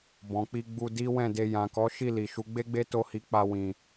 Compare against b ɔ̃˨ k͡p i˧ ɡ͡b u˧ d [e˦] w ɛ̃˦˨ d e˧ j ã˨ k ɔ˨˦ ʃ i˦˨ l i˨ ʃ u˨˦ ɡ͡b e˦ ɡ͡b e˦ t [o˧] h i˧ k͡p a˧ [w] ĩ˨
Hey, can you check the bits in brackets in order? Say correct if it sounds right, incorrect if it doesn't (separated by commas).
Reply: incorrect, incorrect, correct